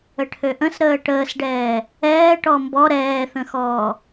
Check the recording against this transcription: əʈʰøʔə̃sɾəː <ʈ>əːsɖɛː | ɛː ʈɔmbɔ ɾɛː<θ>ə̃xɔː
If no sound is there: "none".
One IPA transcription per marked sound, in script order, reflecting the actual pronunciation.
ʈ, θ

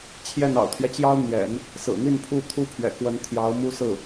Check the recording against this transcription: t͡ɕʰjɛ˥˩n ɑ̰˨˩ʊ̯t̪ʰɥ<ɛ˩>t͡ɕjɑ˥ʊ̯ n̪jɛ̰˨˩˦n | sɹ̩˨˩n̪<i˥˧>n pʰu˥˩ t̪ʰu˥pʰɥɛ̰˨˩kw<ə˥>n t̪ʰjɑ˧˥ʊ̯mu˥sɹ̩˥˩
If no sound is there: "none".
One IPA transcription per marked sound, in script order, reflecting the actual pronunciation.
ɛ˦, i˥˧, ə˧˥

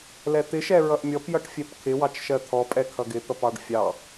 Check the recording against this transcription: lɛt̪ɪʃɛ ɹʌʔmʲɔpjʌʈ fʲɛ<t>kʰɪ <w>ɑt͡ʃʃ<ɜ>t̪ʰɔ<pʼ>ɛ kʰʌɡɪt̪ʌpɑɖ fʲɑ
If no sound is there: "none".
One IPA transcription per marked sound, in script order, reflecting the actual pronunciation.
p, w, ɜ, pʼ

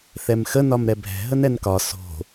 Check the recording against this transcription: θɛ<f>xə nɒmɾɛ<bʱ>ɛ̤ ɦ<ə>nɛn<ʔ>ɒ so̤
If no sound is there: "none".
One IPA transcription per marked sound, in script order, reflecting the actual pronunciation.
m, bʱ, ə, k

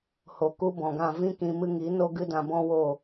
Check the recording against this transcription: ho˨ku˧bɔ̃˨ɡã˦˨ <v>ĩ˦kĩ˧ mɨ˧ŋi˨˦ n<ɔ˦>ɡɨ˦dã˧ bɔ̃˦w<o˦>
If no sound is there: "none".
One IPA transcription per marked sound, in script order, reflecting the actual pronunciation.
v, o˦, o˦˨

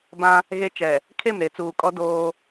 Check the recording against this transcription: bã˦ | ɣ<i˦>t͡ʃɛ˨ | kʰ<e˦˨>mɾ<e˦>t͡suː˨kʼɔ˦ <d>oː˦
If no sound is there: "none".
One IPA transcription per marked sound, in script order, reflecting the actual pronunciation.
e˦, e˦˨, e˨˦, d

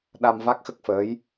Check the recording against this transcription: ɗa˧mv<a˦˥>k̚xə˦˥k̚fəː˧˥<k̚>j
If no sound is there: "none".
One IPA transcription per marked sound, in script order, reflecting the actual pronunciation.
a˦˥, none

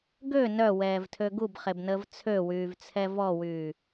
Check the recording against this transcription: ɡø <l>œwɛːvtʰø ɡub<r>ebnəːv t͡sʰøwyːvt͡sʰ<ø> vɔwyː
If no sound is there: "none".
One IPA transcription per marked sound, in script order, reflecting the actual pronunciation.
n, χ, ɛ

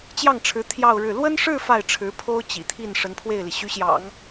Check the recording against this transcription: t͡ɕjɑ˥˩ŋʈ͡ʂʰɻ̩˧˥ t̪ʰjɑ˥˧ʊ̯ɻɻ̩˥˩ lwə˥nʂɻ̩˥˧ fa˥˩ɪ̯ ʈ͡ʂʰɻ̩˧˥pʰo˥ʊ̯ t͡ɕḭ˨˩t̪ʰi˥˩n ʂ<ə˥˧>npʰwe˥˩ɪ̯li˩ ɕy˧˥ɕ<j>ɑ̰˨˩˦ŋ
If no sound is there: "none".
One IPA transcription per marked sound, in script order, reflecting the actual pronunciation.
ə˧˥, j

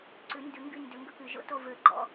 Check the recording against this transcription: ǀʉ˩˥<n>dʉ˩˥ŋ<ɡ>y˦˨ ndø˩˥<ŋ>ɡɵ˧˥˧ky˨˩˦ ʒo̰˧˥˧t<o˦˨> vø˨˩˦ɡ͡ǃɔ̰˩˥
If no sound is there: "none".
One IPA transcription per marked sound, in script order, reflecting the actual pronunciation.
n, ɡ, ŋ, o˦˨

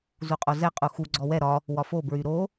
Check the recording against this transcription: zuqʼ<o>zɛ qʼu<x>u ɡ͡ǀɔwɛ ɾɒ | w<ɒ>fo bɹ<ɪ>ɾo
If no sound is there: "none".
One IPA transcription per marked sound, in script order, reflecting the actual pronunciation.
o, x, ɒ, y

